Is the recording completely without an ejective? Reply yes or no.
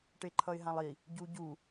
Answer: yes